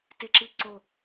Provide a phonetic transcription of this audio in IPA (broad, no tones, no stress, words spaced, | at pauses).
teǁiǀo